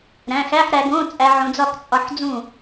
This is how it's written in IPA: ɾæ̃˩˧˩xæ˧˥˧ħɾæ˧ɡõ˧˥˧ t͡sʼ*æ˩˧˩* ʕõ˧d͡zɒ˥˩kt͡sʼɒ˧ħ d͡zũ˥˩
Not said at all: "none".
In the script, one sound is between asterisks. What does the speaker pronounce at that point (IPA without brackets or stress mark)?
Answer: æ˧